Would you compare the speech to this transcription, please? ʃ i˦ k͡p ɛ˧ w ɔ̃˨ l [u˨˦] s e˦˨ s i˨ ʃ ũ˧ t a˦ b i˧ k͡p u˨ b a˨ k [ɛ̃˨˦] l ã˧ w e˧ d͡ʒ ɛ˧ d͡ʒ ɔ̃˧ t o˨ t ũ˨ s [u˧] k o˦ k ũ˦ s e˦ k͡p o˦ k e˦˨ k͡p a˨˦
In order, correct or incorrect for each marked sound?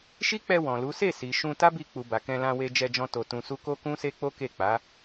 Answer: correct, incorrect: ɛ̃˧, correct

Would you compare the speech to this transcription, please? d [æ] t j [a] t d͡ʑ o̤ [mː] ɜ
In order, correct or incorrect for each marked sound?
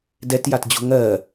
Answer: incorrect: ɛ, correct, incorrect: ŋ

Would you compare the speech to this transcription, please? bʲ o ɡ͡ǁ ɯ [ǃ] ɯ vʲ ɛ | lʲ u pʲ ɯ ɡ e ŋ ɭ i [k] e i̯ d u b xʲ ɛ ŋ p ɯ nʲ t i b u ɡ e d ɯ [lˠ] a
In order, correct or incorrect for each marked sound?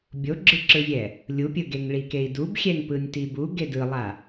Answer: incorrect: ǁ, correct, correct

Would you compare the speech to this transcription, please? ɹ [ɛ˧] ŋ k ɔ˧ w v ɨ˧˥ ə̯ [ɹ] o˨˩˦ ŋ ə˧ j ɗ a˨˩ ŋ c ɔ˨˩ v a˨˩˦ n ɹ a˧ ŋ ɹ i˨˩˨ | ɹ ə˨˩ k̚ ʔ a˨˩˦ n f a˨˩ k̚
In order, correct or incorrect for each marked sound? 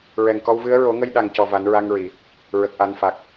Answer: incorrect: ɛ˨˩, correct

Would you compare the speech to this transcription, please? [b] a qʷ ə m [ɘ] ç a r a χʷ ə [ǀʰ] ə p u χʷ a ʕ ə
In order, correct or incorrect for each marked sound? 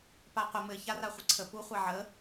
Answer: incorrect: p, correct, correct

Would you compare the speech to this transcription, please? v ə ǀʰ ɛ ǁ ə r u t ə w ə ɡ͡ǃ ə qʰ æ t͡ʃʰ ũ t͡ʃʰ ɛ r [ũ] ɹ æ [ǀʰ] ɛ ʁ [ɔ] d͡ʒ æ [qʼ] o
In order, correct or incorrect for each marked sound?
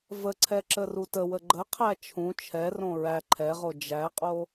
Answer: incorrect: õ, incorrect: ǃʰ, incorrect: o, correct

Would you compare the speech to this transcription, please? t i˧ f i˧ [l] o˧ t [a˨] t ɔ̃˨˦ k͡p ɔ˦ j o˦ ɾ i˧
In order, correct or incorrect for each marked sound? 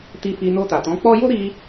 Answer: incorrect: n, correct

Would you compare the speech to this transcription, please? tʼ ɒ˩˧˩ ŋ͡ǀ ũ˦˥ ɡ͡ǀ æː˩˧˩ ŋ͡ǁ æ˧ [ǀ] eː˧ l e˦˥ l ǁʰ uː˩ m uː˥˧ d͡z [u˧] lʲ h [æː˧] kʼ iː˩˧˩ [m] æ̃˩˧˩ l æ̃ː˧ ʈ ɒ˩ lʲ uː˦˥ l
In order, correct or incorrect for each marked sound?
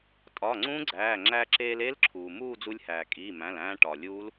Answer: incorrect: ǁ, correct, incorrect: æː˩, correct

